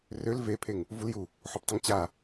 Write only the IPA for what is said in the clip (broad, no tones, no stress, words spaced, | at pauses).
røl vepʰeŋ | vulju | ħoptˤəŋt͡ɕa